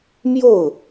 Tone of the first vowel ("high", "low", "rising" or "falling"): falling